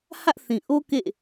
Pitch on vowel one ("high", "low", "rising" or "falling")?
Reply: high